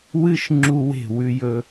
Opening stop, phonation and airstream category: click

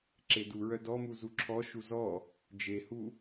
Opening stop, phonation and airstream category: click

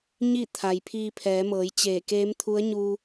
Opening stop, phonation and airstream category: aspirated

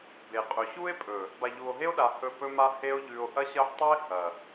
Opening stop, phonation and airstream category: plain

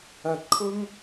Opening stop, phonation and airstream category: plain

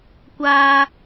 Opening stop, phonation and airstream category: plain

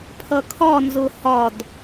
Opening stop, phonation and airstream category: aspirated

